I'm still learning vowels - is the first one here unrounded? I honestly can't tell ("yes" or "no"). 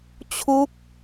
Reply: no